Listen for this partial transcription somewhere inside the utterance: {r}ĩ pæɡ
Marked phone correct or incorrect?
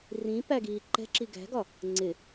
correct